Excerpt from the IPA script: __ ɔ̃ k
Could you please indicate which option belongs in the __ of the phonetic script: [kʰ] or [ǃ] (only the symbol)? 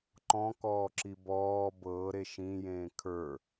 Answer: ǃ